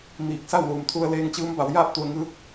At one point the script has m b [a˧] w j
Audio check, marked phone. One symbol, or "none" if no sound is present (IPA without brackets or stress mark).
a˩˧